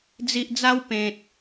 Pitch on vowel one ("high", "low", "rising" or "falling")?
low